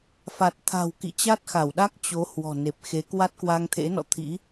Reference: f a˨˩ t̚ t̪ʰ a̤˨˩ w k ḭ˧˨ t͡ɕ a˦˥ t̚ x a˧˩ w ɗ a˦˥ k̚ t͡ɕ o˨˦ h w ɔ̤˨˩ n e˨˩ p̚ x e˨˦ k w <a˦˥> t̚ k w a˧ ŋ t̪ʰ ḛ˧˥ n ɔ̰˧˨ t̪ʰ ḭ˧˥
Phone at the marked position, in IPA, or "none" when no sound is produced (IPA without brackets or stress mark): a˦˥